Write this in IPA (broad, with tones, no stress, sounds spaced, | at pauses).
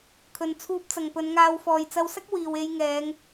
kʰ ɵ˨ n t͡sʰ uː˧ p̚ t͡s ɐ˨ ŋ p ɵ˨˧ n ŋ aː˧ w f ɔː˨ j t͡s ɐ˧ w s ɐ˥ k̚ w iː˨ w e˧ j ŋ ɛː˨˧ ŋ